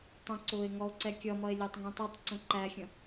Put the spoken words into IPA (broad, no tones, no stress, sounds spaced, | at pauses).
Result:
tˤ ə̃ ǀ ʊː e̯ ŋ ɔ o̯ ǀ ɛ kʲ ʌ m ʌ e̯ lʲ æ tˤ ŋ ĩ tˤ i tˤ ǀ ə̃ ǃ æ xʲ ə̃